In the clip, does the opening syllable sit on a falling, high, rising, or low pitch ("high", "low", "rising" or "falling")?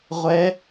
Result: rising